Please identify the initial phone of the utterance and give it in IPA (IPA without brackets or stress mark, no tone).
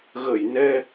ɣ